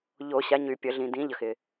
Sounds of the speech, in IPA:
ʎ o˨˩˦ ɕ a˨˦ ɲ y˨ pʲ ə˨˩˦ ɮ ĩ˨ d ĩ˨˦ ʎ ə˨ x ɪ˨

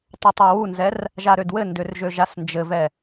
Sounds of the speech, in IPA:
tˤ ɜ tˤ ɛ w u n z ɛ r | ʒ a ɾ ø d w ɘ n d ø r ʒ ø ʒ a s n d͡ʒ ɘ v ɛ

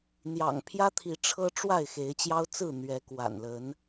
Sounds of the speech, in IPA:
n̪ j ɑ̰˨˩ ŋ pʰ j ä˦ t̪ʰ i˨˦ ʈ͡ʂʰ ɤ˦ ʈ͡ʂ w a˥˨ ɪ̯ x e˨˦ ɪ̯ t͡ɕ j ɑ˦ ʊ̯ t͡s ɹ̩˥˨ n̪ ɥ ɛ˨˦ k w a̰˨˩ n l ə˨˦ n

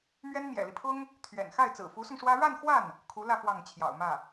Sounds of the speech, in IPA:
m ɥ ɛ˥ n m j ɛ̰˨˩ l i˦ pʰ ʊ˥ ŋ | t̪ʰ ɥ ɛ̰˨˩ n x a˥˩ ɪ̯ t͡s ɹ̩˨˩ f u˧˥ s ʊ˧ ŋ ʂ w ä˥ ɻ a˥˧ n x w a˥˩ n | kʰ u˧˥ l ä˥˧ f w ɑ˥˩ ŋ t͡ɕʰ j ɑ̰˨˩ ʊ̯ m ä˥˩

